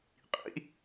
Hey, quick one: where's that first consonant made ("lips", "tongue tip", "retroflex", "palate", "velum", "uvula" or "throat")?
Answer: uvula